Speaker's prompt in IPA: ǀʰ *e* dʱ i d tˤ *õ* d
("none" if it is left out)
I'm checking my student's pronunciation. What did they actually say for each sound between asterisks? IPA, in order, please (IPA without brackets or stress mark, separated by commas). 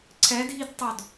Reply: ɛ, o